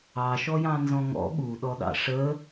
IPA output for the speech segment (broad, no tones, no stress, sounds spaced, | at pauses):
ɑ ʃ ɔ j ɑ̃ n z ɔ̃ ŋ ɔ̰ ɠ u ɗ ɔ ɗ ɑ̰ ʂ ə